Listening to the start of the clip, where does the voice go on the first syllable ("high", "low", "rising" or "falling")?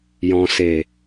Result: low